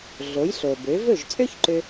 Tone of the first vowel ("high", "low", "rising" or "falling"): rising